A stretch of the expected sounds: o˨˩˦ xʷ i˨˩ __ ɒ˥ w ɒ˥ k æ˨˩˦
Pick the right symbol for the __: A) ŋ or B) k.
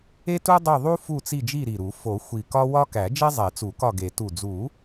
B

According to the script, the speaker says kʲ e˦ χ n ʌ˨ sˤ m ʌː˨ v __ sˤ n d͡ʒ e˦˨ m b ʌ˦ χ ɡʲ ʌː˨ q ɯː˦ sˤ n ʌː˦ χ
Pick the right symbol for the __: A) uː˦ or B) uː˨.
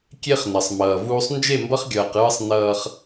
A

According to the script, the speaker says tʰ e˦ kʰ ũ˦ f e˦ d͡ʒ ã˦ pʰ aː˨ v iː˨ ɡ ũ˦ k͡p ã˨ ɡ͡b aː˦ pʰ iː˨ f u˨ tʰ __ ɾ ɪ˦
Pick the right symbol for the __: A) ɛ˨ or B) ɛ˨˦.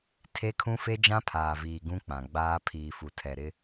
A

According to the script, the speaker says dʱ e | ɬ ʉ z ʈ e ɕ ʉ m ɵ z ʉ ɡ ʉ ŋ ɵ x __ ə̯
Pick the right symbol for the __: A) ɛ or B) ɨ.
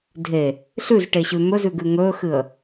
B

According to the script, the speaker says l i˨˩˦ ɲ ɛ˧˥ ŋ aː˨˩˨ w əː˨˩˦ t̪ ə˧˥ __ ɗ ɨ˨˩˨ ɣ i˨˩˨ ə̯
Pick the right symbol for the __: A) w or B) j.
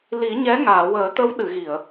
A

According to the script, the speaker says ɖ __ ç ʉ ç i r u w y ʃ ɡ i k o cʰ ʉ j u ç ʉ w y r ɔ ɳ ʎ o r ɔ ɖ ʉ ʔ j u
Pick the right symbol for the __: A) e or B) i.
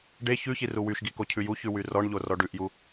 A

